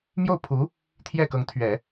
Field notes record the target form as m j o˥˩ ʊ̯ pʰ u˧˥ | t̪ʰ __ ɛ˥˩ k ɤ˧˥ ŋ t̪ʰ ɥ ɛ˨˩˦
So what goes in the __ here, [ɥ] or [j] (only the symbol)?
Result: j